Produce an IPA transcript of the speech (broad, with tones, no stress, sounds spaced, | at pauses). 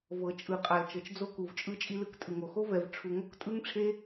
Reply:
v ɤ˨ t͡ʃʼ ɯ˨ qʼ a˨ l t͡ʃ ɤ˨ t͡ʃ d͡z o˦ k u˨ v t͡ʃʼ ɯ˦ t͡ʃʼ i˦ l ɯ˦ k tʼ ɯ˨ ŋ o˨ x o˦ v ɛ˨ v ʈ͡ʂʰ u˨ ŋ o˦ k tʼ ɯ˦ ŋ ʈ͡ʂʰ e˦